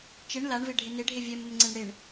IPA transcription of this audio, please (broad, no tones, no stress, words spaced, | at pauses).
t͡ʃɪɳ laɳvɪɖʱɪ nɪɖʱe vʲɛməmŋ͡ǀeɳ ɽɪɳ